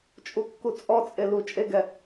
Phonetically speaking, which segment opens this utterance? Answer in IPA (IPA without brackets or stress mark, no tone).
t͡ʃʼ